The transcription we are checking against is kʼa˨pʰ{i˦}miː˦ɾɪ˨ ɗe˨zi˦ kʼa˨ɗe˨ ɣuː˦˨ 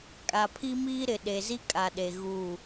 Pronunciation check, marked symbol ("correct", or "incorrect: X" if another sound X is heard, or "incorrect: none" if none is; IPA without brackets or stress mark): correct